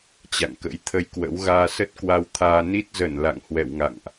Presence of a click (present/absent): absent